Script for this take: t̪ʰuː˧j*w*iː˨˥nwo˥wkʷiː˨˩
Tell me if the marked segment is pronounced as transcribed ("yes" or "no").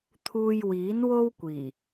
yes